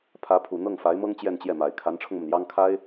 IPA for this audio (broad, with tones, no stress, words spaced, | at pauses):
pʰä˧˥pʰu˨˩n̪ɤ˥˩ŋ fa˧˥ɪ̯mɤ˥ŋ t͡ɕjɛ˥˧nt͡ɕjɛ˥˩ma˨˩ɪ̯ kʰa˧˥nʈ͡ʂʰʊ˧ŋmə˩n jɑ˥ŋkʰa˥ɪ̯